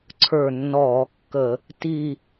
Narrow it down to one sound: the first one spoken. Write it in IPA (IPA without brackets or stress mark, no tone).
ǀʰ